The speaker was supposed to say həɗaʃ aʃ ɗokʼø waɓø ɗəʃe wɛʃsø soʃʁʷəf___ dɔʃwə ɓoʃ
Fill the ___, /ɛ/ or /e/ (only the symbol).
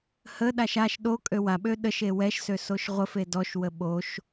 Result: e